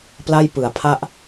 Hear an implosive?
no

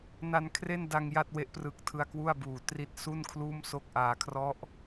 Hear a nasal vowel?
no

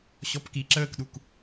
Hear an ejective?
no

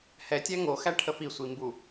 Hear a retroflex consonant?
yes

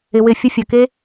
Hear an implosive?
no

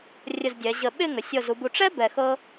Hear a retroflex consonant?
yes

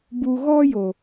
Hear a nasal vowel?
no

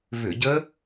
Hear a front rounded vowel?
yes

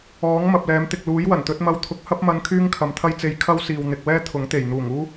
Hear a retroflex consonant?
no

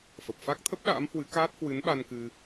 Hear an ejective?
no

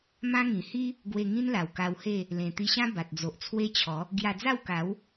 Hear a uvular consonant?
no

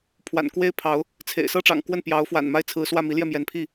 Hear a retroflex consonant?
yes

